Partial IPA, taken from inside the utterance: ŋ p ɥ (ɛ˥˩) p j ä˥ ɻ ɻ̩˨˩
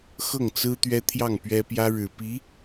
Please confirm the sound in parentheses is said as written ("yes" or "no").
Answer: no